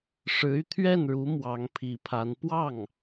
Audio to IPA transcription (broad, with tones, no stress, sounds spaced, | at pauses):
ʂ ɻ̩˧˥ y˧ t̪ʰ ɥ ɛ˥˩ n ɻ u˧˥ m w ɑ˧˥ ŋ pʰ i˧˥ pʰ a˧˥ n p w ɑ˥˩ ŋ